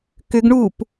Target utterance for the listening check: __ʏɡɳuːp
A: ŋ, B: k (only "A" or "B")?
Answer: B